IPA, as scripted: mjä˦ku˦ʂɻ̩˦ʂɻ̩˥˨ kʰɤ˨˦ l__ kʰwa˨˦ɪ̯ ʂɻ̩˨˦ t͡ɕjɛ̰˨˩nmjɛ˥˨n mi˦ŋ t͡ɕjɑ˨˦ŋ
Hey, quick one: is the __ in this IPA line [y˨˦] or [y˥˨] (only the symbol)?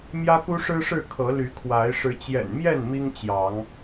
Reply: y˨˦